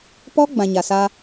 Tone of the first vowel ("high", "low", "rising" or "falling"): high